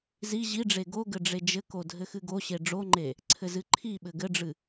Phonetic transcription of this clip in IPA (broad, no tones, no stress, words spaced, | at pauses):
zi ʑiɖ͡ʐe ɡoɡɘ ɖ͡ʐed͡ʒɘko dʱɘxɨɡoɕe ɖ͡ʐoŋ͡ǃe | ǀʰɘzɨǃʰiɓɘ ɡɘɖ͡ʐɨ